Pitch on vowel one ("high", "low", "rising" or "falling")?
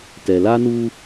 low